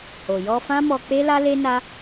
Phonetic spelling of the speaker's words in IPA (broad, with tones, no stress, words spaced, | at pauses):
ho˨jɔ˧fã˦ mɔ˧k͡pe˦la˦le˦ na˦